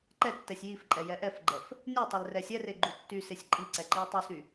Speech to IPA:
ǃ ɛ tː ɛ sʲ j i f ǃʼ ɛ j ɛ ʔ ɛ f ɡ͡ǃ ɛ f | nʲ u tˤ e l r ɛ sʲ ɛ r e ɡ͡ǃ u tː y s e sʲ ǃʼ i ǀ ɛ ǃ i ɐ̯ tˤ y s y

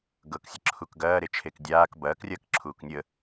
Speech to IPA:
ɡ ɤ k sʲ ə ǁʰ u k ɡ ɐː ɾ e t͡ʃʰ e k dʲ aː k b ɐː k rʲ ɐː k ǁʰ uː k nʲ ə

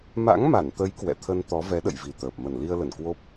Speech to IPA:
m a̰˧˥ ŋ m a˧˩ n t̪ ə˨˦ j k w ɛ̰˧˨ t̪ʰ ə˧ n t̪ ɔ˨˦ v ɛ˨˦ ɗ ə̰˧˨ j v i˨˩ t̪ əː˨˩ p̚ m ə˧˩ n l i˧ ə̯ l ə˧˩ n k w o˦˥ p̚

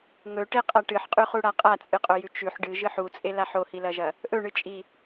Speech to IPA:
ŋ ɵ ʈ e qʼ a ʈ ɨ ħ qʼ ʉ χ u ɽ a qʼ a t͡sʼ ɨ qʼ o j ʉ t͡ʃ ʉ ħ ɖ ɨ ʒ ɨ ħ u t͡sʼ e l a ħ o h i l ɐ ʒ ɐ | ʔ ɵ ɳ ɨ t͡ʃʼ i

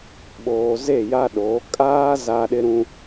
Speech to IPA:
ɓ oː˨ z e˦˨ j a˦ ɗ oː˨˦ kʼ aː˦ z a˦ ɗ ɪ˦ ɾ ũ˦

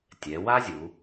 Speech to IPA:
tʲ ɛ˩˧ w a˥ zʲ u˩˧

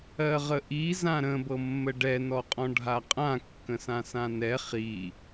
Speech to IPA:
ɜ ʁ ə ʔ i z ã ɾ ə̃ b ɤ mː ə ɖ ɛ n ɔ qʼ ɔ̃ ɖʱ a qʼ ã kː ə̃ s ã s ã n ɛ χ i

